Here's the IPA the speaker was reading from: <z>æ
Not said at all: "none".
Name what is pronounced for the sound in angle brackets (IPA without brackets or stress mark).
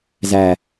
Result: z